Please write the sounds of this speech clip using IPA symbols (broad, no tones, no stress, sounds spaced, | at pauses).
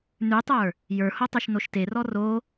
n ʉ tˤ ə˞ | j ə˞ h o tˤ ʉ ʃ n o ʃ t e r ɔ r o